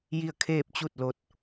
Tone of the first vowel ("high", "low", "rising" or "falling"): falling